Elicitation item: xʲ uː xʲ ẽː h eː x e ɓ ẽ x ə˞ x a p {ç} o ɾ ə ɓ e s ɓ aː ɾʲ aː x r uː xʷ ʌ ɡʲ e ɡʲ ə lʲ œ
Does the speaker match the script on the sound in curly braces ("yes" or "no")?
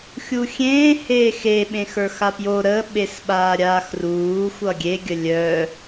no